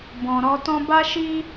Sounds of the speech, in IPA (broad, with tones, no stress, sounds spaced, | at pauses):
b ɔ̃˨ ɾ ɔ˧ t ɔ̃˦ b a˦ ʃ i˦